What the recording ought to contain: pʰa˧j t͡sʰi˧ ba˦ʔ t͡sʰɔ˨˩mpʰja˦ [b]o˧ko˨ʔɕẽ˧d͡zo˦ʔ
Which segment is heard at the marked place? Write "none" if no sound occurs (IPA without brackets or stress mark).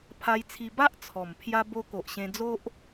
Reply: b